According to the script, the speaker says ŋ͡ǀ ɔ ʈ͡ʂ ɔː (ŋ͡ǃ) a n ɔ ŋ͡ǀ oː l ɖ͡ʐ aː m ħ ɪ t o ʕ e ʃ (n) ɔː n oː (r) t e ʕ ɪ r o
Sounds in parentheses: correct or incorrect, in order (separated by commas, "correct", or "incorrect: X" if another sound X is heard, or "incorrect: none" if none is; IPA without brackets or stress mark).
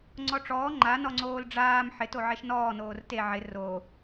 correct, correct, correct